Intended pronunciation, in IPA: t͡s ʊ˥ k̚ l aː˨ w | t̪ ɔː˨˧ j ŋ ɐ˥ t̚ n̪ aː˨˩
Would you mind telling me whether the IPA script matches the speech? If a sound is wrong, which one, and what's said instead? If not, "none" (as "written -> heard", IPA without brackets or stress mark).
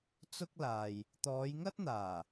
w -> j